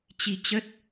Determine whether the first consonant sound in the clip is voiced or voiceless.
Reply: voiceless